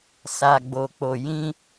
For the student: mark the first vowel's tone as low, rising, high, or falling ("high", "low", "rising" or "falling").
low